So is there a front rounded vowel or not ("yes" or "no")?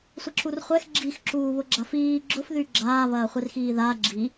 yes